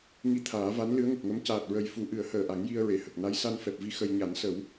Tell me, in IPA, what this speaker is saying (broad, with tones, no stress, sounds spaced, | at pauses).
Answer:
ŋ i˧ t̪ʰ aː˨˩˦ v a˧˥ n l ɨ˧˥ ə̯ ŋ ə˨˩ k̚ ŋ ə˧˥ m c aː˨˩ t̚ ɹ ə˨˩ j f u˨˩˦ ʔ ɨ˨˩˦ ə̯ h əː˨˩ ʔ a˨˩˦ ŋ j i˧ ə̯ ɹ e˨˩˨ h ə˨˩ k̚ n a˧˥ j s a˧ n f ɛ˨˩ p̚ v i˧ x ə˧ j ɲ a˨˩˦ n s ə˨˩˦ w